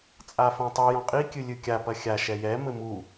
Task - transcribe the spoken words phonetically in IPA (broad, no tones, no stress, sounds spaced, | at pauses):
t͡sʼ a f ɐ̃ tˤ i j ɔ̃ qʼ i kʲ ɨ lʲ ɨ kʲ a p ɐ xʲ a ʃ ɛ j ɛ m ɘ m u